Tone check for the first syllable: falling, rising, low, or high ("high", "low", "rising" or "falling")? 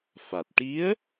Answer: low